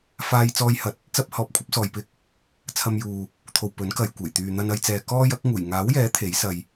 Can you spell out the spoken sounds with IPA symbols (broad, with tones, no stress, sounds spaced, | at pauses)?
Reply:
f aː˧ j t͡s ɔː˧ j h ɐ˨˥ t̚ | t͡s ɐ˥ p̚ h ɔː˨˥ p̚ kʷʰ ɐ˨˥ p̚ s ɔː˨ j p ɪ˧ k̚ | t͡sʰ ɐ˧ m j uː˨ | t̪ʰ o˨ w p ɵ˨˥ n k ɐ˨ j kʷ e˨˩ j t̪ yː˨ n̪ ɐ˧ n ɐ˧ j t͡s ɛː˨ k ɔː˥ j ɐ˨˥ k̚ ŋ uː˨˩ j ŋ aː˨˥ w j ɛː˨˥ t̪ʰ e˨˥ j s ɐ˧ j